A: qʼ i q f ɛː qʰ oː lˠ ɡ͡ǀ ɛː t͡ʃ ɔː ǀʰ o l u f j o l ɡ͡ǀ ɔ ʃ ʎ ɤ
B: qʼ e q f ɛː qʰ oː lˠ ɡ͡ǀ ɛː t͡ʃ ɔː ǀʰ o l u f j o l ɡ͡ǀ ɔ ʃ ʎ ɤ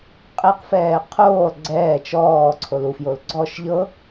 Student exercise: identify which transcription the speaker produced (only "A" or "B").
B